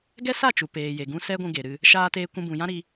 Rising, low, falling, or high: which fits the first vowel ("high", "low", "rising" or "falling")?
high